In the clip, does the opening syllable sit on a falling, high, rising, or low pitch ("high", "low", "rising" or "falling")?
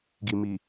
low